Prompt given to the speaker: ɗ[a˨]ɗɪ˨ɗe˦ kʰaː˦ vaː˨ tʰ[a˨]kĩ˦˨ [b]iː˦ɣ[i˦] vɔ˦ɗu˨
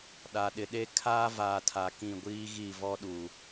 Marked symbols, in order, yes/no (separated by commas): yes, yes, no, no